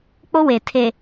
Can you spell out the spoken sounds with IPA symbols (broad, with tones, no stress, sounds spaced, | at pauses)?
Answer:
k͡p o˦ w e˨ tʰ e˨